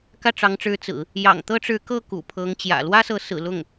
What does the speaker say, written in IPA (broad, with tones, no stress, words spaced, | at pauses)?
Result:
kä˥˩ʈ͡ʂɑ˧˥ŋʈ͡ʂɻ̩˧˥ t͡sɹ̩˨˩˦ | jɑ̰˨˩ŋt̪ɤ˥ʈ͡ʂɻ̩˧˥kɤ˥˩ kṵ˨˩pʰɤ˧˥ŋ t͡ɕjä̰˨˩ lwä˥sɤ˧˥ sɹ̩˨˩lʊ˥˩ŋ